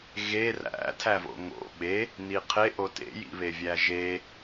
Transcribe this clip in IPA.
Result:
ɣe ræ̰ tʰævo̰ŋo̰ ɓe | niqʰeʔo tḛjḭβe vʲæʒe

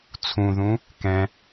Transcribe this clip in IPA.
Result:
t͡sʰũðũ | kɛ̃

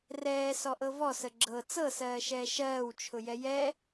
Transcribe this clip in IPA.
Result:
rɛː sɔʔɤvɔ səɡ͡ǁɤ t͡sɤsɜːʃɛː ʃɜːwt͡ʃʰʊjɛ jɛ

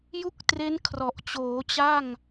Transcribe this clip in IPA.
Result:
ju˥˩k̚tre˦˥n kʰrɔ˨˩ʔ t͡ɕoː˩˦ t͡ɕa˥˩ŋ

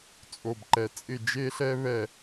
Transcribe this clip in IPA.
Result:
t͡sʼo˨bǃɛ˨ t͡sʼɪ˦˨d͡ʒe˦ ɬɛ˦βɛ˦˨

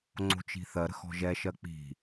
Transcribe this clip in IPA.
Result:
ŋ͡ǀo̤t͡ʃi̤θɜɾə̤x ɔ̤ʒɛʃɜ k͡pi̤

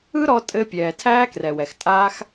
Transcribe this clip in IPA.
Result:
ɯ˥ɾɔ˧ tʼɘ˧ pʲɛː˩tʰæː˥krɛ˩wɛ˩x tʼaː˥x

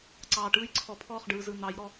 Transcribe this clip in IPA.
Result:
ǀɑː˨ʈɯː˦jǀʰɔ˨pʰɔː˦˨χ ɖɯː˨zɯ˨ n̪ɑ˨˦jɾɔ˦

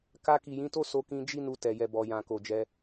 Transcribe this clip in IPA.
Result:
ka˧ki˨jĩ˨˦ to˦so˧ kĩ˧d͡ʒi˦ nu˧tɛ˨ jɛ˨bɔ˨jã˨ ko˨d͡ʒɛ˧

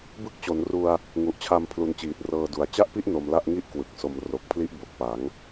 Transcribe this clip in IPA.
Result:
bɯ˦˥k̚t͡ɕo˩˦nru˧a̯ | ŋu˨˩ʔt͡ɕʰa˧m pʰlu˧nt͡ɕiː˨˩t̚ rɤː˧du˨˩a̯ t͡ɕa˥˩ʔpi˥˩ʔ no˧mla˥˩ʔŋi˥˩ʔ kwɯ˨˩k̚so˧m ro˨˩k̚pʰli˦˥ʔ bo˨˩k̚pa˩˦ŋ

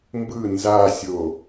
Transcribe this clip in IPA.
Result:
mbɯ nzasʲo

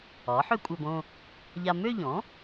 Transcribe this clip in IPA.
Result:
ɒ˩˥ ħø˥kʷʼæ˧bõ˥˧ | ʎa˧ mø˥˧ʎɔ̃˩˥

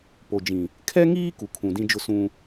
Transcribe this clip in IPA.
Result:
po˨d͡ʒĩ˨ | kʰɛ˦ŋiː˦ ku˨kʰũ˨dĩ˦d͡ʒʊ˦ sũ˦

